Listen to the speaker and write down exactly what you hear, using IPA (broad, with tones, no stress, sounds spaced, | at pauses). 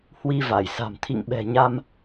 h w i˧ v a˧˩ j s a̤˨˩ m t̪ʰ ḭ˧˨ ŋ ɓ ɛ̤˨˩ ɲ a˧ m